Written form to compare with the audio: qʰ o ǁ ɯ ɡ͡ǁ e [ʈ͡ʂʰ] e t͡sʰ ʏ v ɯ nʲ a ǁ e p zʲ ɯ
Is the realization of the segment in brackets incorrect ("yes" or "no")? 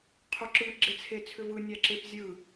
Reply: yes